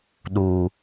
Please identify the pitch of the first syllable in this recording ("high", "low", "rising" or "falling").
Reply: low